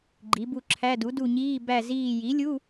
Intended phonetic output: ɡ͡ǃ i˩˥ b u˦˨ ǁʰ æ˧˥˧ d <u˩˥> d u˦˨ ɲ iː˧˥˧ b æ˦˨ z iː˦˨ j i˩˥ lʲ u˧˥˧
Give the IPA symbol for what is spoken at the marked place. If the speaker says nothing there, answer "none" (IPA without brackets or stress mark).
u˩˥